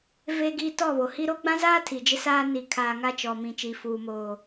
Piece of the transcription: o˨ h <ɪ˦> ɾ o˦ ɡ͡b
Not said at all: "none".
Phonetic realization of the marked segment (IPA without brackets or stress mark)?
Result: i˦